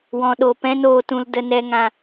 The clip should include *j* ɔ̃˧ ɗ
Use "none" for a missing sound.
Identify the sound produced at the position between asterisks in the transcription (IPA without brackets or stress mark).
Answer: w